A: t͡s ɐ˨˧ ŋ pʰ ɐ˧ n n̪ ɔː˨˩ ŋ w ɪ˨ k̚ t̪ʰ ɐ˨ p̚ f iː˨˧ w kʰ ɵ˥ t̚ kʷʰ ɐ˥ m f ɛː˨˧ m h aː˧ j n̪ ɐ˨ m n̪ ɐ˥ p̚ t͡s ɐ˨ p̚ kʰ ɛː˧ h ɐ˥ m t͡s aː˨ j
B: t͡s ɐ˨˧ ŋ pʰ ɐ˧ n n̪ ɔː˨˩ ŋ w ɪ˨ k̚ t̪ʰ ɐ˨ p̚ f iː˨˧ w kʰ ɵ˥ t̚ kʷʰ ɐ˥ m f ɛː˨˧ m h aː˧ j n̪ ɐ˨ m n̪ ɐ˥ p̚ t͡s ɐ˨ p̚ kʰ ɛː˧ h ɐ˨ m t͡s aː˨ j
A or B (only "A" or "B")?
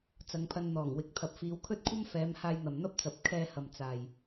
B